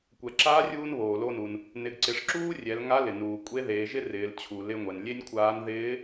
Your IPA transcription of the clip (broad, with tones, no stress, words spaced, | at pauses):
kʷɛ˩ǁaː˧˥rʲuː˧n βoː˩lo˧nu˩n | nɪ˩˧ɡǀɪ˩˧ʂ ǁuː˥rʲɛ˩˧lŋa˧˥lɪ˩ nuː˩ kʷʼe˧˥ðeː˩˧ʒɪ˥ rɪː˩˧lt͡ɕʰu˩lɪ˧ŋʷɛ˩n lʲe˥nʲkʷʰaː˧˥n ðɪː˧˥